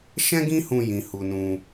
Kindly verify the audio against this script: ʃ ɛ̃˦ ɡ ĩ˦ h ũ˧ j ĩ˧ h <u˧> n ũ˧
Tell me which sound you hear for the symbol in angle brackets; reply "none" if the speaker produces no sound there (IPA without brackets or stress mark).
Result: u˧